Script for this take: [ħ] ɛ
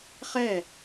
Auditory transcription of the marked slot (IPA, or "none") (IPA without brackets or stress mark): χ